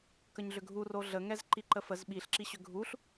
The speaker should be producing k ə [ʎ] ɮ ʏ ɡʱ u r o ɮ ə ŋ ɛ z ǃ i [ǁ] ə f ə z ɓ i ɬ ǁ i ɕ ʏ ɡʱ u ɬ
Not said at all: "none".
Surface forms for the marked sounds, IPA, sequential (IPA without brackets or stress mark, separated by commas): ɲ, ǃ